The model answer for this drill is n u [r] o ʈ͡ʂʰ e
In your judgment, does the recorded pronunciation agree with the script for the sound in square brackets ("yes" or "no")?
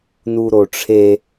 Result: no